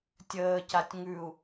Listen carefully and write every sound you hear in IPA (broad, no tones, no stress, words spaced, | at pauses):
tʲəːcatʲ ŋʉu̯